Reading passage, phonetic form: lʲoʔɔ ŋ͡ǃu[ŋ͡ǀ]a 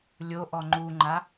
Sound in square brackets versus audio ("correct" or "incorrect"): incorrect